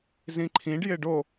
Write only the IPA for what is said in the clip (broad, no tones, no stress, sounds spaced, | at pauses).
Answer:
z ĩ ǃʰ ĩ ɖ j ɪ ɖ o